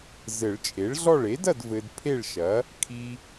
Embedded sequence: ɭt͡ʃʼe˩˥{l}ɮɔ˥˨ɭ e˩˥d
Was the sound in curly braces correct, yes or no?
no